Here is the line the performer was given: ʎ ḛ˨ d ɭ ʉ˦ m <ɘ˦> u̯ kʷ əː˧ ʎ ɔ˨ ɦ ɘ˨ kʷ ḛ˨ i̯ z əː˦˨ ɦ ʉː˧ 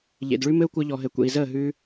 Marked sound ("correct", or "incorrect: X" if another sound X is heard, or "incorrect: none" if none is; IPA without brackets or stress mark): correct